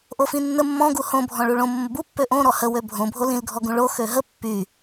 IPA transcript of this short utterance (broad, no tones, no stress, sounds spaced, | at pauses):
ʔ o f ĩ nː ə mː ɔ̃ ɡ u h õ bʱ ɔ̃ ɭ u ɭ õ mː ə b u pː ø ʔ õ ɾ ɔ h ə w ø bʱ õ bʱ o l ĩ l ɡʱ ɔ ɡ ũ ɭ o x ø ɦ ə pː y